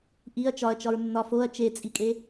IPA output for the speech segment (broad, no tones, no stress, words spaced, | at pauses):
ʔiɐ̯ t͡ʃɒɐ̯t͡ʃɒɹnːɒ foɐ̯ t͡ʃet͡sʼikʼe